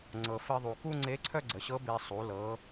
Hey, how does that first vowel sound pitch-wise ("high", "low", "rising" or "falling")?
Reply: low